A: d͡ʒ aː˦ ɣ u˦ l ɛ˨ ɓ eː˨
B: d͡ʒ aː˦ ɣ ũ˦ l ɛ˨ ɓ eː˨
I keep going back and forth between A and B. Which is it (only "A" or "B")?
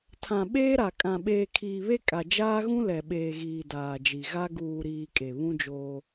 B